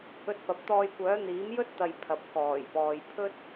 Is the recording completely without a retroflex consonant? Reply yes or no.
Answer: yes